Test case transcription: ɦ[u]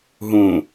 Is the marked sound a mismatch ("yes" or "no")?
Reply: yes